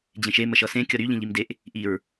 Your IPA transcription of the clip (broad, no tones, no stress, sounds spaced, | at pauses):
d͡ʑ ẽ ʃ e m ə ʃ ʌ s ẽ kʲ ʌ ɾ y ʎ ĩ ʎ i m d e ʔ | ʔ i ɹ